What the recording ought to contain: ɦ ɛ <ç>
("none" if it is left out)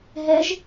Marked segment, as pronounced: ʒ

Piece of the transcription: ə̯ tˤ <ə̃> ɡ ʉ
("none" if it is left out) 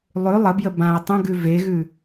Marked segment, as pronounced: ə̃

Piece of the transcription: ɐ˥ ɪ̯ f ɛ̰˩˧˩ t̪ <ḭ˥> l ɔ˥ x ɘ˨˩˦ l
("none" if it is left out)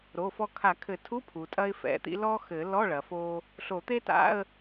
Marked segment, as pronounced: ḭ˥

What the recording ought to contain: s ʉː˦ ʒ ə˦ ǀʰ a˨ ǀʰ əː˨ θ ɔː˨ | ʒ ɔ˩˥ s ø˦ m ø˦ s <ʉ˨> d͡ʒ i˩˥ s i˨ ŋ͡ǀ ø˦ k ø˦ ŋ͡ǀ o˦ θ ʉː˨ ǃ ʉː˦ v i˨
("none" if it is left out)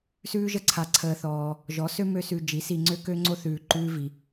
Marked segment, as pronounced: ʉ˨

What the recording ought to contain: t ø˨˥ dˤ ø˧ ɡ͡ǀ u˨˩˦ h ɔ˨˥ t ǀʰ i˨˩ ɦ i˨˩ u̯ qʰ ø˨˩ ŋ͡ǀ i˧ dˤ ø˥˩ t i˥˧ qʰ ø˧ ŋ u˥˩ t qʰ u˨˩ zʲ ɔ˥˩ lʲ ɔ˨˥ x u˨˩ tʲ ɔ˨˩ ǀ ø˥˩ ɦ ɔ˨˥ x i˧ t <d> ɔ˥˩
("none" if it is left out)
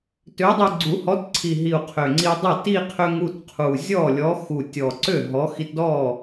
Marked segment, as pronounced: d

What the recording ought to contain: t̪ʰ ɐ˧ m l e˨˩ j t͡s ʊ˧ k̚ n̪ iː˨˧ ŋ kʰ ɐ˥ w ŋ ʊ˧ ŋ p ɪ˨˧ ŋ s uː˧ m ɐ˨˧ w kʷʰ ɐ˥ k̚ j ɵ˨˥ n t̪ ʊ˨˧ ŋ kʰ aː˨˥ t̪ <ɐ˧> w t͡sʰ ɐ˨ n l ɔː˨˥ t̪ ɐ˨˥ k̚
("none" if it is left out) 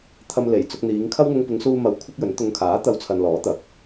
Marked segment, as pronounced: ɐ˧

